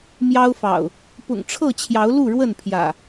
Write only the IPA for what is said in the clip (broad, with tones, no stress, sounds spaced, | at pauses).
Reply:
m j ɑ˦ ʊ̯ f ɑ̰˨˩ ʊ̯ | p ʊ̰˨˩ ŋ ʈ͡ʂʰ ɤ˥˨ t͡ɕʰ j ɑ˨˦ ʊ̯ l u˥˨ ɻ w ə˥˨ n pʰ j ä̰˨˩